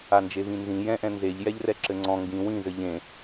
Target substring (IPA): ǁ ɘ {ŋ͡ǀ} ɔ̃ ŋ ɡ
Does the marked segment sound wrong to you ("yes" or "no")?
no